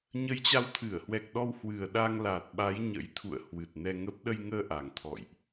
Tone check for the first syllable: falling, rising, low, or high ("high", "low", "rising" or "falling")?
rising